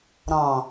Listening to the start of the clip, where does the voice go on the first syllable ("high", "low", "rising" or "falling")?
low